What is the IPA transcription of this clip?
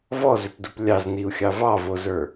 v ɔ z ʏ p d u p lʲ ɑ z n i u̯ xʲ ɑ v ɑ v o z ə˞

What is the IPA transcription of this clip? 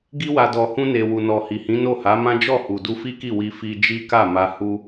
ɡ i˧ w a˨ d ɔ˨ h ũ˧ n e˨ w u˨ n ɔ˨ h i˨ h ĩ˨˦ n o˦˨ h a˨˦ m ã˦ d͡ʒ ɔ˦˨ h u˨ d u˧ f i˦ k i˦˨ w i˧ f i˧ d͡ʒ i˦ k a˦˨ m a˧ h u˦

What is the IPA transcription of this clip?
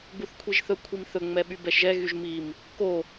ɡ͡b u θ kʷʰ i ʒ θ ɵ kʷʰ i m θ ɵ ŋ͡m ɛ ɓ y b ɛ ʃ ʒ ɛ ɣ y ʒ m i m | k o

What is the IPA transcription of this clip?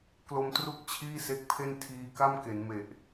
k l o˧ m t r u˦˥ k̚ t͡ɕʰ iː˥˩ s e˦˥ k̚ pʰ e˥˩ n tʰ iː˧ k a˥˩ m k e˩˦ n m e˨˩ ʔ

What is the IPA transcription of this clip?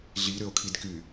ɮ i ɾ ʏ o̯ kʰ i d k y

